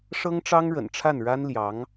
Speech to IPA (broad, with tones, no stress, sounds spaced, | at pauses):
ʂ ɤ˥ ŋ ʈ͡ʂ ɑ˥ ŋ ɻ ə̰˨˩ n ʈ͡ʂʰ a˥˩ n ɻ a˥ n l j ɑ˧˥ ŋ